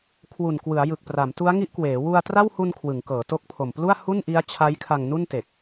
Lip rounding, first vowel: rounded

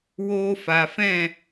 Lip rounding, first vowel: rounded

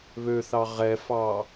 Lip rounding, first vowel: rounded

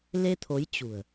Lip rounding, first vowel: unrounded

